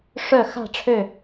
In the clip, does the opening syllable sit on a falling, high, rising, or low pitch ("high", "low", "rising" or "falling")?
falling